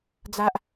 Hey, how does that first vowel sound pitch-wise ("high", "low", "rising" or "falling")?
high